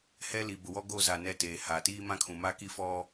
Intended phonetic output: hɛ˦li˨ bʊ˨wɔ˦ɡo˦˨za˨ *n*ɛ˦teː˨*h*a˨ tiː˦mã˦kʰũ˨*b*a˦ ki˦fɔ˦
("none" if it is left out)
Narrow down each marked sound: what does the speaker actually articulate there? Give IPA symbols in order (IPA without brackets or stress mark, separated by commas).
n, h, m